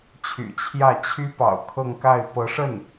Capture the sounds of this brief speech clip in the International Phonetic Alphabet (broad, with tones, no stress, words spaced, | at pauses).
t͡ɕʰy̰˨˩t͡ɕʰjä˥˩ t͡ɕʰy˥pɑ̰˨˩ʊ̯ kʰɤ˥˧ŋka˥˩ɪ̯ pɤ˧˥ʂə˥˩n